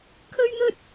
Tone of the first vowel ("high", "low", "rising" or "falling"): high